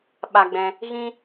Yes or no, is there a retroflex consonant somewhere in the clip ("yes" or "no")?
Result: no